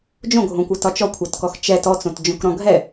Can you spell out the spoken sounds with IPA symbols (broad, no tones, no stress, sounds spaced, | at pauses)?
d͡ʒ õ ɡʱ õ kʷ ɤ t ɒ t͡ʃ ɔ kʷʰ ɛ t k ɔ x t͡ʃ ɛ t ɔ t͡s õ t d͡ʒ õ k ɾ ɔ̃ ɡʱ ɛ